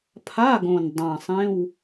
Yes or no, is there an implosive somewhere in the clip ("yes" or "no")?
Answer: no